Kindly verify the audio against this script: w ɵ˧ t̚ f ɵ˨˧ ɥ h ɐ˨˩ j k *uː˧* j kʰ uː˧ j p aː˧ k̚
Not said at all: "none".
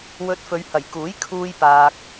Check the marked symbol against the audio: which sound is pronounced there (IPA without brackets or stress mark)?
uː˨˥